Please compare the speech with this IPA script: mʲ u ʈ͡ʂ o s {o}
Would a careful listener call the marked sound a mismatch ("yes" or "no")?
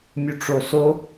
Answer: no